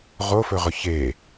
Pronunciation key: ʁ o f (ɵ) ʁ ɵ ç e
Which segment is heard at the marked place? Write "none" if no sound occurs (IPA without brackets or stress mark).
ɵ